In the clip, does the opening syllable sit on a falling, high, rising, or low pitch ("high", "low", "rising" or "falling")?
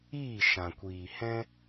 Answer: falling